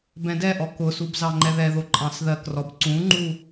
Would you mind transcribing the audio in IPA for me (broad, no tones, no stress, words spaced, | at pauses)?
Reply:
bɛ̃dɛʔɔ kʊsub zɑŋ͡ǃɛðɛðo ǃʼɑ̃sðɜkrɔb ǀũŋ͡ǃu